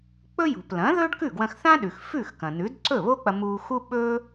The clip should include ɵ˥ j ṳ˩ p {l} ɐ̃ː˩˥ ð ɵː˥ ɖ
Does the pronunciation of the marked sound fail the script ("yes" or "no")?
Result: no